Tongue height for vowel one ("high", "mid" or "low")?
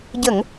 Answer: mid